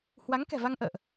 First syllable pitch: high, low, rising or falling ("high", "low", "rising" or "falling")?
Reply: rising